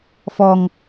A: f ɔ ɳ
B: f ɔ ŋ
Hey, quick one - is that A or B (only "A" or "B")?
B